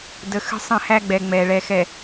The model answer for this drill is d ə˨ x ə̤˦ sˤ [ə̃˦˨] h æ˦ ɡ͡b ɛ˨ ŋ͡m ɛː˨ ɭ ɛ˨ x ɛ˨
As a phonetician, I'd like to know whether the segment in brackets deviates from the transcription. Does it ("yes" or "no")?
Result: no